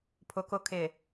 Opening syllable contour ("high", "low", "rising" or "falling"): low